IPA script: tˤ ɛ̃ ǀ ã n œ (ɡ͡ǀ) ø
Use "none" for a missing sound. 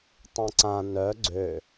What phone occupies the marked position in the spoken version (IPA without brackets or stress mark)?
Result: ɡ͡ǀ